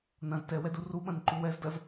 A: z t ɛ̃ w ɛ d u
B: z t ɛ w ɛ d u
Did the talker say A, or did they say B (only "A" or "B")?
B